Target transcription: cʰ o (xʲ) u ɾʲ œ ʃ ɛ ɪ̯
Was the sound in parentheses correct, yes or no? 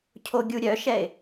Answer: no